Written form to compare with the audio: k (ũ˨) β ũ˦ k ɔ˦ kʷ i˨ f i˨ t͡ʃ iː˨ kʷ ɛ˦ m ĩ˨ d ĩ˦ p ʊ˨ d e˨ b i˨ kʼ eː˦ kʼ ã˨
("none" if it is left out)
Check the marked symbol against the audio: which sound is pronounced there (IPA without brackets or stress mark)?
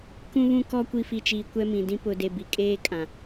ũ˦